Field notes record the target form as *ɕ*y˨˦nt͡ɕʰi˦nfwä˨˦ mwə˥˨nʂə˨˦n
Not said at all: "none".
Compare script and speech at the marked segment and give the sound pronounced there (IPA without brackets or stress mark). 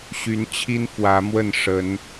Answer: ɕ